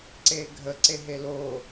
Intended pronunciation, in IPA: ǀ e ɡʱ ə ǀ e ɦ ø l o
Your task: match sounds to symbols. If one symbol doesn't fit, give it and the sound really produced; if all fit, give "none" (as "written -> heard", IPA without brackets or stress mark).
ø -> e